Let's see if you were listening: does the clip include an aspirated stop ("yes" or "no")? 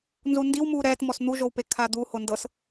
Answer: yes